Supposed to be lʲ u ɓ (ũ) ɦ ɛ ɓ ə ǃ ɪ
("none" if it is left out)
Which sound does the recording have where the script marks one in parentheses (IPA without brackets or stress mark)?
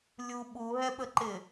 u